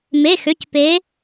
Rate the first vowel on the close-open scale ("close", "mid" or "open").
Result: mid